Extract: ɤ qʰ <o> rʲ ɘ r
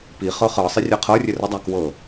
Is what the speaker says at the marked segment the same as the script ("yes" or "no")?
no